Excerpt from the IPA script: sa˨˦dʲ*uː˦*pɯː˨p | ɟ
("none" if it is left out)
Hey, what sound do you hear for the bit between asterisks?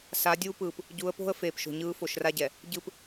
uː˦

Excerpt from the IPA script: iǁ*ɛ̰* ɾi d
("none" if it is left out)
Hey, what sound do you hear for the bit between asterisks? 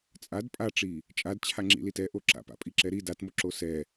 ɛ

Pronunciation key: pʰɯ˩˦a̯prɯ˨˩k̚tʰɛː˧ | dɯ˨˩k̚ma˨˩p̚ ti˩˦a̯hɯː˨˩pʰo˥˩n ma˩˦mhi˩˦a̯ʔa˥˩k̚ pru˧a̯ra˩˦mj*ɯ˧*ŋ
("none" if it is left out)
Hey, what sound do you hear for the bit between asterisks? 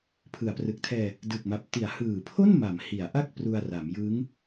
ɯ˦˥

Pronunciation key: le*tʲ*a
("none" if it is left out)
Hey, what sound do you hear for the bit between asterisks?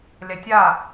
tʲ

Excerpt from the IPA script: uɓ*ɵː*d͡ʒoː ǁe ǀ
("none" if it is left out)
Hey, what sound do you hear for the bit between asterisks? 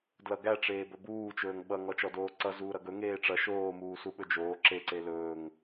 ɵ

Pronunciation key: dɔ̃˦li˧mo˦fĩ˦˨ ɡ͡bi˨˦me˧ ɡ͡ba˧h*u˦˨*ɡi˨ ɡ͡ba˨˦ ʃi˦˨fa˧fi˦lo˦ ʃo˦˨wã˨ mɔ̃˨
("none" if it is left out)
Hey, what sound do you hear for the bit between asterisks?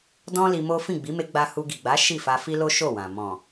u˧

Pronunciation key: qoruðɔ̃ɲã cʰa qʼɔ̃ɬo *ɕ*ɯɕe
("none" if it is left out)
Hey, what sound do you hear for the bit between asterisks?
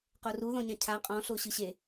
ɕ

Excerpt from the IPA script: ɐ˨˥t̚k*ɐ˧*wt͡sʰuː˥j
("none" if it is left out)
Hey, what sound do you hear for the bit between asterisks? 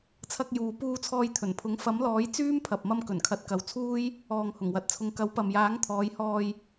ɐ˨˧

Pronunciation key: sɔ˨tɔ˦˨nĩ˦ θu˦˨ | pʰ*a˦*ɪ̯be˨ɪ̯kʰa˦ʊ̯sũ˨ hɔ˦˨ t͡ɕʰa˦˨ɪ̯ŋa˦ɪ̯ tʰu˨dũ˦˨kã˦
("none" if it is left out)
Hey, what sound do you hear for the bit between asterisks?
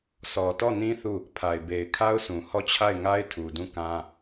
a˨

